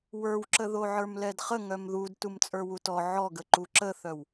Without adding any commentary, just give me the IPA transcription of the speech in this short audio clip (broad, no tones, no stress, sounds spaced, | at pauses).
w ə˞ w ǁ ə ð o ʕ ə˞ m l ɛ d χ ə ŋ œ m ð u d t u m t͡sʼ ə˞ w u t ɔ ʕ ɔ ɡ ə ǃ u ǁ ə θ œ w